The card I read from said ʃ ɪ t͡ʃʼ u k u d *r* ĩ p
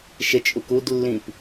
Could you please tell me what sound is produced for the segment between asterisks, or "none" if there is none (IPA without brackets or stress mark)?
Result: lː